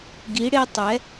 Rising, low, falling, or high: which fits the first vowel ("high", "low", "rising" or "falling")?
rising